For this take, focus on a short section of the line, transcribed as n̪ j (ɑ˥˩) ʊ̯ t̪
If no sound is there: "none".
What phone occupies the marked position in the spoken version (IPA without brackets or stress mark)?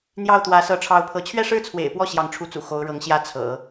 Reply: ɑ˥˩